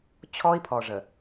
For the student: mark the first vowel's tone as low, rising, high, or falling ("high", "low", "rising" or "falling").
high